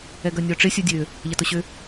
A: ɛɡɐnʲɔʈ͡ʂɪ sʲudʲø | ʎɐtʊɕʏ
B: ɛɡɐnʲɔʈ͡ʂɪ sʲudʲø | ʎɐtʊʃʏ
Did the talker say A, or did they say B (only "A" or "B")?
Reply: A